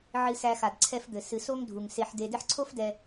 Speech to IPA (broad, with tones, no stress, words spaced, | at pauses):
ʕɨ˦sæ˦ xa˩d ǀʰɛ˦fd̪ɘ˩ sɨ˨so˥ŋdʱu˩ŋ se˨ħ de˨dɘ˦ħǀʰo˥fdɛ˨